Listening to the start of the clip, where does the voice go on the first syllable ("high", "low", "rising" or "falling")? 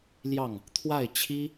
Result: falling